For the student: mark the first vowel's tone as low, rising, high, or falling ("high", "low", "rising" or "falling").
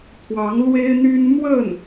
rising